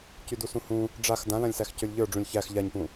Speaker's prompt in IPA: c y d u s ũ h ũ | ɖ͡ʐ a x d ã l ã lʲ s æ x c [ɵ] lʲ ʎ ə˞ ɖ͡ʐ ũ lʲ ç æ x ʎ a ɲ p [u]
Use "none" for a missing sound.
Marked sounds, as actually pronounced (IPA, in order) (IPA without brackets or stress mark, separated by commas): ɵ, ũ